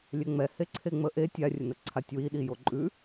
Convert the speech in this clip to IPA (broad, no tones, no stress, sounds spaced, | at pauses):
lʲ ɛ ŋ͡m ɛ h e ǀʰ e ŋ͡m ə ʔ e tʲ a rʲ ə n ə ǀʰ a tʲ w i ɗ i j o ǃʼ ʉ